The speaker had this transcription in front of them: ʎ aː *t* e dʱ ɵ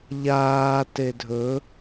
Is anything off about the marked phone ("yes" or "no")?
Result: no